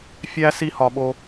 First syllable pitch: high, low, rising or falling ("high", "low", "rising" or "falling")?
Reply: high